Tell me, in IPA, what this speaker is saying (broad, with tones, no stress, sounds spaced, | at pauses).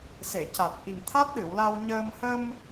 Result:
s e˨˩˨ c a˨˩ t̚ ʔ i˨˩ ŋ t̪ʰ a˦˥ t̚ ɗ ɨ˨˩˨ w l a˧ w ɲ əː˧ m h ə˧ m